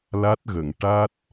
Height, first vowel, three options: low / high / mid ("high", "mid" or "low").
low